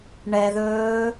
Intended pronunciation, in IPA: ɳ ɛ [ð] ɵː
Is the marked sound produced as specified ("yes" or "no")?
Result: yes